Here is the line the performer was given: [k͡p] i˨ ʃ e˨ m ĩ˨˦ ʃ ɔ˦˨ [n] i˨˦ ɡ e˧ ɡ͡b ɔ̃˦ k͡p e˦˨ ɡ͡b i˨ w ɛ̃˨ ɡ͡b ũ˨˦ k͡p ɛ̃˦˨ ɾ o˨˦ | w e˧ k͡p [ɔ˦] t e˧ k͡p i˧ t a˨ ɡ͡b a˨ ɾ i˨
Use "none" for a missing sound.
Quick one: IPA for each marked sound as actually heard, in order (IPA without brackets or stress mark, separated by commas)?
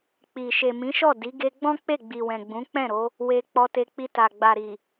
k͡p, d, ɔ˧